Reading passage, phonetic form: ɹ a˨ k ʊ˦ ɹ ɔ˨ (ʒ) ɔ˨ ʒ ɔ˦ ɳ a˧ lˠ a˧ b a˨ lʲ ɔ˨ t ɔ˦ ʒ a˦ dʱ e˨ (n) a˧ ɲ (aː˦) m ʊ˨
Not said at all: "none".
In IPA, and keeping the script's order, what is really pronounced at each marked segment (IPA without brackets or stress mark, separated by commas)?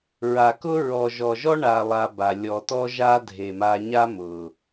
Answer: ʒ, m, a˦